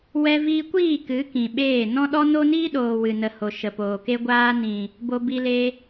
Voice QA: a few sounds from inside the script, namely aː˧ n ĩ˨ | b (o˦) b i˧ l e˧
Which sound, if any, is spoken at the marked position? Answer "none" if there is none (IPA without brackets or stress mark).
o˧